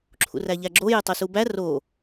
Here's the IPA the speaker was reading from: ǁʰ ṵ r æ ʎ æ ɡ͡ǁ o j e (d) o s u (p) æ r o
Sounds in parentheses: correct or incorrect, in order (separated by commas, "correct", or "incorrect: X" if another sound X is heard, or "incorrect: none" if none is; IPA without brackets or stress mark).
incorrect: tˤ, incorrect: b